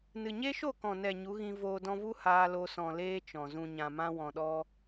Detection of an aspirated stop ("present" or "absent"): absent